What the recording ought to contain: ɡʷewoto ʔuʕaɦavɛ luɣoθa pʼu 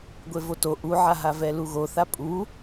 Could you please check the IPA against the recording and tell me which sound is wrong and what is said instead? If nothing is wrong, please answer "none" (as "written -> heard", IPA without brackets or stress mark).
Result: w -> v